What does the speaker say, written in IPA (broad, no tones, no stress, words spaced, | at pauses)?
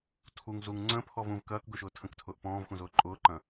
tʰuŋ zuŋ ŋ͡ǀə̃pʰɔv ũv kɐːkɡʊʃʊː tʰə̃ktʰʊːʔ pɔ̃ːvxũzʊː ǃʼʊːǃɐ̃